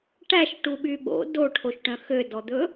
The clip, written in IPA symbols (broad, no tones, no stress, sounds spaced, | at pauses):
ʈ æ ʃ ʈ u ɓ y ɓ o̰ d o ʈʰ o ʃ ʈ œ̃ x ø d ɔ d̪ ɵ